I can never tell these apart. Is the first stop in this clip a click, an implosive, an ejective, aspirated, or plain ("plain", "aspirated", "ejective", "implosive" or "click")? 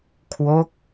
aspirated